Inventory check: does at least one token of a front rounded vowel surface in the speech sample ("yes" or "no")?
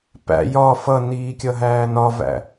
no